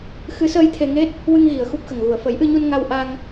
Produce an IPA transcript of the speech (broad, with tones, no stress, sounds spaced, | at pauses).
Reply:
x ɨ˧˥ s əː˧ j t̪ʰ e˧ ŋ e˦˥ t̚ | w ɨ˧ ŋ ɣ i˨˩ ə̯ x u˦˥ p̚ x ə˨˩ ŋ ɣ u˨˩ ə̯ f ə˨˩˦ j ʔ ɨ˧ ɲ u˧ n ŋ a˧ w ʔ a˧ ŋ